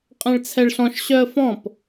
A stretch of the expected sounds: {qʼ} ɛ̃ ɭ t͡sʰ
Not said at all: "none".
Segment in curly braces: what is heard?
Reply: qʼ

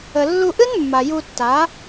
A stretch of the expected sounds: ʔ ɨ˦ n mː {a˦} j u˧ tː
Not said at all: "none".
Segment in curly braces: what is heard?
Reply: a˨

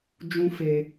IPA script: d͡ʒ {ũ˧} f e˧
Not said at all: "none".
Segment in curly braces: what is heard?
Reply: ũ˧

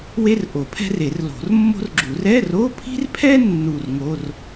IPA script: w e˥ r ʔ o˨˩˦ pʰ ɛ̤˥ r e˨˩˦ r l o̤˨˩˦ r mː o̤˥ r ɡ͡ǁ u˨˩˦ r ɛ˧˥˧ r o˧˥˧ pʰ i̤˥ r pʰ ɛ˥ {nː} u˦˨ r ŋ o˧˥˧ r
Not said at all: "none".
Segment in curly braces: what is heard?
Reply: nː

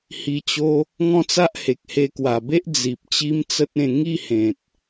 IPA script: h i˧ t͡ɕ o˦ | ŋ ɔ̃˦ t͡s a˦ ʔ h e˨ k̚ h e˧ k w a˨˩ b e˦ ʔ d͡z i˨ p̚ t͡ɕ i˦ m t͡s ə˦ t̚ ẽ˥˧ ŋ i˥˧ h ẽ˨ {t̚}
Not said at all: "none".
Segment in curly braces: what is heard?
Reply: t̚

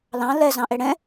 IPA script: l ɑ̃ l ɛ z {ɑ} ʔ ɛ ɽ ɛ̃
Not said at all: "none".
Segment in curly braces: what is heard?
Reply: ɑ̃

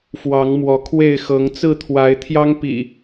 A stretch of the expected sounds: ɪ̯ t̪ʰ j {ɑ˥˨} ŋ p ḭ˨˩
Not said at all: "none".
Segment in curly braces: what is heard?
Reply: ɑ˦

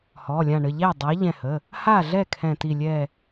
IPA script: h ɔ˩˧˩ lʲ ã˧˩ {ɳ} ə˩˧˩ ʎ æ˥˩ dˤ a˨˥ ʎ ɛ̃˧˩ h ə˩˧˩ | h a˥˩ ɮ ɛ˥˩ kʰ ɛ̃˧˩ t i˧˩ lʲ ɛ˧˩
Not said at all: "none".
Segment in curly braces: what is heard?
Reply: ɳ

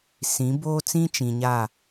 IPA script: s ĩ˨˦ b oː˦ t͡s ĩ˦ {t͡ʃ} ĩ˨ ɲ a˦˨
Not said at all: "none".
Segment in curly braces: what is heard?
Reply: t͡ʃ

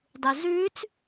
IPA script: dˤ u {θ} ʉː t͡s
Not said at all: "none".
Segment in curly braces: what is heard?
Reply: z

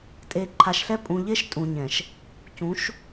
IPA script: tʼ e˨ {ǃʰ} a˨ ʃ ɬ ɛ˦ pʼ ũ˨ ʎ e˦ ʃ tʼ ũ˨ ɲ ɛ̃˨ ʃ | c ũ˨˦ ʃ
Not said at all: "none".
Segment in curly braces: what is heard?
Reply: ǃʰ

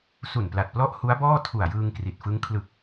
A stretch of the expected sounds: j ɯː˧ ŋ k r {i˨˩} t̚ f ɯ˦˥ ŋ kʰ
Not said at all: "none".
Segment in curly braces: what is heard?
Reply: i˨˩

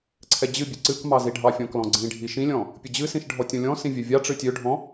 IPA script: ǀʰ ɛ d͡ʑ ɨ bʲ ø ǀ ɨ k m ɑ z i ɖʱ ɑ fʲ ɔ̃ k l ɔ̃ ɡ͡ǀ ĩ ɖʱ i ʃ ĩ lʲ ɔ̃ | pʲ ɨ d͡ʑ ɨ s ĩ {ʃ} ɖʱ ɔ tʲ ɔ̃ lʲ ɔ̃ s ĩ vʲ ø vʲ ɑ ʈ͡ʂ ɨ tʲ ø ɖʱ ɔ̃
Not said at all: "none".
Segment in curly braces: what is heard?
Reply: ʃ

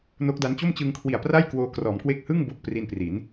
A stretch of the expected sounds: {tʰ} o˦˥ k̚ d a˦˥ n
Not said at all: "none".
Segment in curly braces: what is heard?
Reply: n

